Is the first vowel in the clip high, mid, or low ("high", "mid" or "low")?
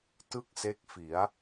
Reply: high